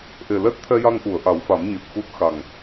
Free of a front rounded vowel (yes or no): yes